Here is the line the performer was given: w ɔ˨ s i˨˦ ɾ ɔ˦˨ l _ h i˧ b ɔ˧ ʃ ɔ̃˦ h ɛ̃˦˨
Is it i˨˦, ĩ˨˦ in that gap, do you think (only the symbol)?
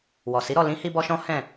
ĩ˨˦